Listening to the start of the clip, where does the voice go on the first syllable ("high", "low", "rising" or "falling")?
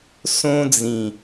high